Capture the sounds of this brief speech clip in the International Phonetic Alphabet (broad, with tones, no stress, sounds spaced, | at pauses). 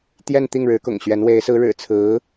t̪ j ɛ˥˧ n t̪ i˥˩ ŋ ɻ ɻ̩˧˥ k ʊ̰˨˩ ŋ ɕ ɥ ɛ˧˥ n w e˧˥ ɪ̯ s ɹ̩˧˥ ɻ ɻ̩˨˩ t͡sʰ ɹ̩˧˥